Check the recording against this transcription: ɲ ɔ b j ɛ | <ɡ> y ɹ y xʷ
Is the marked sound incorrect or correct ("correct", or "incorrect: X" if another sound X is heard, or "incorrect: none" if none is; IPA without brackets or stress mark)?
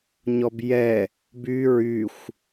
incorrect: b